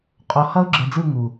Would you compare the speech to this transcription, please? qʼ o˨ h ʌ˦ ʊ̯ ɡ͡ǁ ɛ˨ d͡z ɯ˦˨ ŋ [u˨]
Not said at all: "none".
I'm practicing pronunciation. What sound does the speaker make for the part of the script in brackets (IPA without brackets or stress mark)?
u˨